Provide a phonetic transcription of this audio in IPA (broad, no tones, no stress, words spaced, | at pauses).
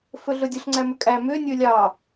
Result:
fɵɮɵdʲɵɬ ŋ͡ǀæmʏkʼæ mʏː nʲɵːlʲɑː